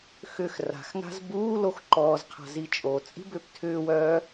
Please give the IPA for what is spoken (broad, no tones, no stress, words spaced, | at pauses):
xʏx ra̤xŋa̤z buː loxǃɔːzqʰa̤ zit͡ʃʼot͡sʼi̤ bʏːptʰʏːwœː